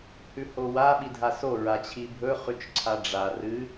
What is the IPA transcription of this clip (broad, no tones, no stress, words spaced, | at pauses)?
hʉhowa ɓidʱaso ɹat͡ɕʰibʱɵ χʉt͡ʃǀʰaɖ͡ʐa rɨ